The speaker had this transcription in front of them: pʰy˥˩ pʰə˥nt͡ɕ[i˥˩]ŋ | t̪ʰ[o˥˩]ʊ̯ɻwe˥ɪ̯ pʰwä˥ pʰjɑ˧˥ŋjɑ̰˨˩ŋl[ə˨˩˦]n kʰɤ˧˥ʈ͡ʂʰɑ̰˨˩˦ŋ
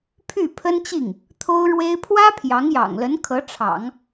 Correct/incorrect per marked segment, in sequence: correct, incorrect: o˥, incorrect: ə˧˥

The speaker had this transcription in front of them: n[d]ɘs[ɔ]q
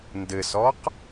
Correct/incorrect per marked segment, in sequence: correct, correct

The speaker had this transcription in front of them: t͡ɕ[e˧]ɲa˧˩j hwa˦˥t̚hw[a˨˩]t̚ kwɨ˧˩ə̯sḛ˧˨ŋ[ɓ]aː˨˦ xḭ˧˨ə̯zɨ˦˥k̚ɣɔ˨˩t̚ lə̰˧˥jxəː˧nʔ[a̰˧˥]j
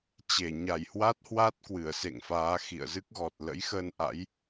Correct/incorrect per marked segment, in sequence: incorrect: e˧˩, incorrect: a˦˥, incorrect: f, correct

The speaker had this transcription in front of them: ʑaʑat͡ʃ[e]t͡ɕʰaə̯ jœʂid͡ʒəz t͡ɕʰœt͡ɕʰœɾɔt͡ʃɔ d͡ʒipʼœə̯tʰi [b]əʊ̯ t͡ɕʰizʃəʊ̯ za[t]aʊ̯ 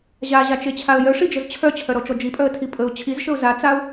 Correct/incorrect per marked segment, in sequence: correct, incorrect: pʼ, incorrect: t͡s

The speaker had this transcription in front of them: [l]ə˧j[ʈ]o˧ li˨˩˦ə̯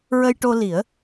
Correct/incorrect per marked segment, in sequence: incorrect: ɹ, correct

